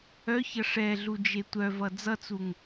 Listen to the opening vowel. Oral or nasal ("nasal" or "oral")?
oral